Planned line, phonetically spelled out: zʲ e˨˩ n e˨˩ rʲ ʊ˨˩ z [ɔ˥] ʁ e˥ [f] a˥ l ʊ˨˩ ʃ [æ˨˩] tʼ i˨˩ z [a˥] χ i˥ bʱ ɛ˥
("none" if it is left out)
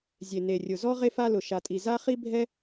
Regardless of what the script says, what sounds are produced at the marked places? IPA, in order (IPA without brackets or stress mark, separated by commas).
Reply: ɔ˥, f, a˨˩, a˥